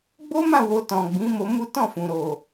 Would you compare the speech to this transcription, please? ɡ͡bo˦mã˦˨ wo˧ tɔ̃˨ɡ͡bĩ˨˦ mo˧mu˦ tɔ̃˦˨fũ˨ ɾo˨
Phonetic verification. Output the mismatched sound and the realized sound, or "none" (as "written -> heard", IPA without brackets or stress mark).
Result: none